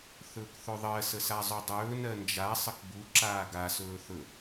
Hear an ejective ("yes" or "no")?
no